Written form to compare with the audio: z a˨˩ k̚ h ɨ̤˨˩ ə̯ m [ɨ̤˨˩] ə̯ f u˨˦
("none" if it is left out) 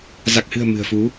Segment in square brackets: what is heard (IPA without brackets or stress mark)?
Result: ɨ̤˨˩